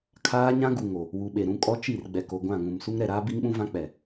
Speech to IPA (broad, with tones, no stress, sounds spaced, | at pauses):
kʰ aː˦ ɲ ã˦ ɡ u˨ ŋ o˨ | w u˨ ɓ e˨ ɾ ũ˦ kʼ ɔ˦ t͡ʃ i˦˨ r ɡ͡b ɛ˨ k o˨ ɡʷ ã˦˨ ŋ ũ˨ m s u˦ ŋ ɾ ɛ˨ ɾ aː˦ b i˦ ŋ ɓ ũ˦ v ã˦ k͡p ɛ˨